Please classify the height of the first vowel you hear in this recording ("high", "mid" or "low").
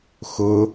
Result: high